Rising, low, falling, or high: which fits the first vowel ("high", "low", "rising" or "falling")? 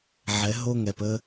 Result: rising